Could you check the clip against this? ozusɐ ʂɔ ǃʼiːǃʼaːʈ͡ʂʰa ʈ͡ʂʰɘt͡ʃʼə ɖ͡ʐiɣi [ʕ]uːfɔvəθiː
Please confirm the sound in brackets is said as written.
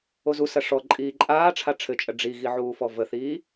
yes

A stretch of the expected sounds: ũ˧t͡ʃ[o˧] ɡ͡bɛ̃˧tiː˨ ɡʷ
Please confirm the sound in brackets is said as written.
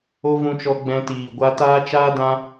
no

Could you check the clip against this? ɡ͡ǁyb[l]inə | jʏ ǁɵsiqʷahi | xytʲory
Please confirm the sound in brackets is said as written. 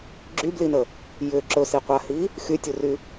yes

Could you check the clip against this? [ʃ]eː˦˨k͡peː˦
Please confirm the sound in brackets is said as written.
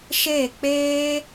yes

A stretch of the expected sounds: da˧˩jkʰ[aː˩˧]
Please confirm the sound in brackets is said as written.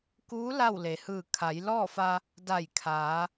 yes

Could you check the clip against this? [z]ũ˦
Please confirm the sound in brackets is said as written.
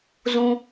yes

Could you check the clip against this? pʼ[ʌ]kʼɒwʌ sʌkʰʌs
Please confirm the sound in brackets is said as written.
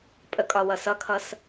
no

